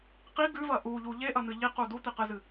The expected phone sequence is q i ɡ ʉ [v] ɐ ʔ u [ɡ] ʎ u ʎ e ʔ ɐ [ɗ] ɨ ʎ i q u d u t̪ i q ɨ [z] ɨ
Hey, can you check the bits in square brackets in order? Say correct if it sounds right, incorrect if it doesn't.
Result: correct, incorrect, incorrect, correct

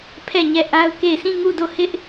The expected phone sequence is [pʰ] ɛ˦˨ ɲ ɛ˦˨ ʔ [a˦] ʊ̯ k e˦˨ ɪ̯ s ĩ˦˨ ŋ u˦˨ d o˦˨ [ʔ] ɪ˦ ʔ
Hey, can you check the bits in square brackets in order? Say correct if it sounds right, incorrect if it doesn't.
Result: correct, correct, incorrect

